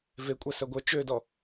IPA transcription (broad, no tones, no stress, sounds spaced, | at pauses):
v e kʷʼ æ s œ ɡʷ œ t͡ʃ ø d ɔ